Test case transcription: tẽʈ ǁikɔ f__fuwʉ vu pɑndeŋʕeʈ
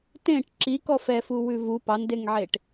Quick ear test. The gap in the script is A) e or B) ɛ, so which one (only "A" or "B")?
B